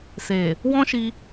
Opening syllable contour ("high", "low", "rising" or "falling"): low